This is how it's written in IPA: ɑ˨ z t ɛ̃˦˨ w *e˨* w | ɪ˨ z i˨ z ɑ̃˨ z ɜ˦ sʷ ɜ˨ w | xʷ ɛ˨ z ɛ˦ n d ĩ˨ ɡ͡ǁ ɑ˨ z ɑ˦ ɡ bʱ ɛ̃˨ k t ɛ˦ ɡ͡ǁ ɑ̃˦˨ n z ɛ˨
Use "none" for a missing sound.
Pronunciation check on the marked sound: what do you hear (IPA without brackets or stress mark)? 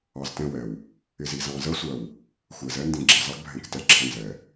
ɛ˨